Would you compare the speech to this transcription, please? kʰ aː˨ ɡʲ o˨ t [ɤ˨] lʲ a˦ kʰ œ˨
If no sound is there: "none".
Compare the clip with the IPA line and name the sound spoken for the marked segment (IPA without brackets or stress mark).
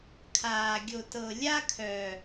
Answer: ɤ˨